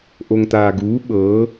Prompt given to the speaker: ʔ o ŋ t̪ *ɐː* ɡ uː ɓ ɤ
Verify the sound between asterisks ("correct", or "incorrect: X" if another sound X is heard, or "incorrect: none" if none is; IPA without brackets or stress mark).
incorrect: aː